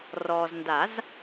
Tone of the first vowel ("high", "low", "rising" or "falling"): low